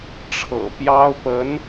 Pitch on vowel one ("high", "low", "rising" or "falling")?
low